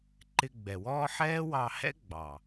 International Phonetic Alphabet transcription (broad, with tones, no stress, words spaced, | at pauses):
ǃɪ˧ɡ͡bɛ˨wɔː˦ ħɛː˦wɑ˧hɛ̰˦ ɡ͡bɑ˨